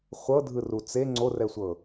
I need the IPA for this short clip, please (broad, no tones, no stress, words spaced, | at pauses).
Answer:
χʷɤdʱɯ rut͡se ŋ͡ǀorɛsʷɤ